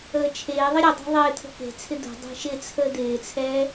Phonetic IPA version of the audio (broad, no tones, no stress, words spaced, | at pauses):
əːt͡ʃʰeːðˤə ɾʲədˤa̤ ðˤɪːt̪ʰə̤ ke̤t͡sʰɪ d̪ə̤ dˤe̤ʃɪt͡sʰəː d̪ɪːt͡sʰɛː